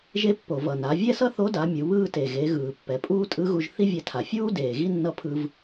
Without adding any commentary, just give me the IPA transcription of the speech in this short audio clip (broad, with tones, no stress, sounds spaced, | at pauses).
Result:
ʒ e˧ pː o˩ v ʌ˩ n a˩˧ vʲ ɛ˥ s ʌ˥ θ o˧˥ d a˩˧ mʲ u˩˧ β ɯː˥ t e˩ ɣ e˩˧ ɣ ɯː˩ pː ɛ˩˧ pʼ uː˥ tʼ ɯ˧˥ ɣ u˧ ʒ θ i˥ vʲ ɛ˧ tʰ a˩ fʲ uː˥ d eː˩ ɣ i˥ nː ʌ˧˥ pʰ ɯ˧ v